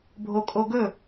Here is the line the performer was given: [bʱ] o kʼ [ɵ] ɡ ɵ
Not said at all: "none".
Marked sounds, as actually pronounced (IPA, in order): bʱ, o

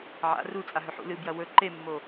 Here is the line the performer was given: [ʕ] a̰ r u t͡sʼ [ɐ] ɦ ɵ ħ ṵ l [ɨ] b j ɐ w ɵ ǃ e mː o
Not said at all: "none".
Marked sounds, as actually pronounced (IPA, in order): ʕ, a, ɨ

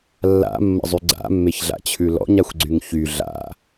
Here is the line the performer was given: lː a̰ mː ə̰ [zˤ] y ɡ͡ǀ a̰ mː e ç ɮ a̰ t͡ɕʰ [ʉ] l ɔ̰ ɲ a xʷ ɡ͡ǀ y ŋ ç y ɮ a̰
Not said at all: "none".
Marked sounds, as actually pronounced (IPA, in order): zˤ, ʉ

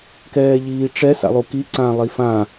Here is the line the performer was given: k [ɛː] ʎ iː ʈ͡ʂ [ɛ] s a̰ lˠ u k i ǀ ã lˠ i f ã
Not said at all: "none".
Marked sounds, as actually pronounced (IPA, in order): ɛː, ɛ

